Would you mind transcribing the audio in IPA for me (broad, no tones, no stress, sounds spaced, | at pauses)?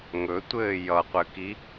ŋ ɵ tʷ ɘː j ʌ qʷ ɘ k i